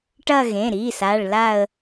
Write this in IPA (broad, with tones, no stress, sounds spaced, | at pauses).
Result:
ʈ ɐ˦˨ ɣ ẽ˩˧˩ ɾ iː˩˧˩ s a˩˧˩ ɭ l a˦˨ ə̯